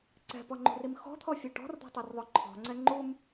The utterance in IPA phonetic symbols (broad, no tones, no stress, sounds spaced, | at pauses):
ǀ ɛ̤ p ɔ ŋ͡ǃ ṳ r i m x ɔ̤ t̪ʰ ɔ fʲ ɔ ʈ ɔ̤ r d̪ ɔ̤ tˤ o r ðˤ o ǃʰ ɔ̤ ŋ͡ǀ ɛ ŋ͡ǃ u m